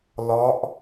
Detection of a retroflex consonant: absent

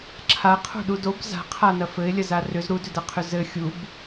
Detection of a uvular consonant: present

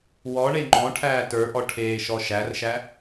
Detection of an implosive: absent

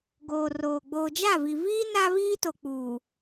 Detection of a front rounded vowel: absent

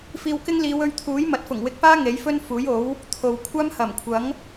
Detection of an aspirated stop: present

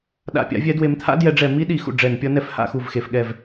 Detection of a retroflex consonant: present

